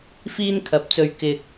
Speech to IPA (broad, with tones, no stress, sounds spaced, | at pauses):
f iː˥ n kʰ ɐ˨˥ p̚ t͡s ɵ˧ ɥ k ɪ˧ k̚